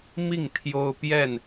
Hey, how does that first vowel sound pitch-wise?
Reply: falling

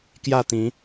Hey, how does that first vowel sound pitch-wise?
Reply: falling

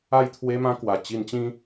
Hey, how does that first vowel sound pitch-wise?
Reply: falling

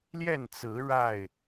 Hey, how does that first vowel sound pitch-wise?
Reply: falling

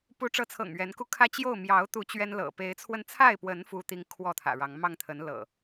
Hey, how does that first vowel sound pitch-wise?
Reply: rising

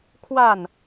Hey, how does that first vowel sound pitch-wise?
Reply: falling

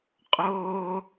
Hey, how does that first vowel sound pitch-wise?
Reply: low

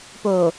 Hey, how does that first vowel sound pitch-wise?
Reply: low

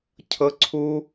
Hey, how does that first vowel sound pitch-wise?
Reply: high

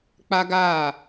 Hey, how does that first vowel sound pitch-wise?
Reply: high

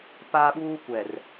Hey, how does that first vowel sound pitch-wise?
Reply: high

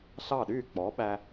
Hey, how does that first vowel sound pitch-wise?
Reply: falling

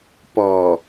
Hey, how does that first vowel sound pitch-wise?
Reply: low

